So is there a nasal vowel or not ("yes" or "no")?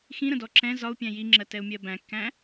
yes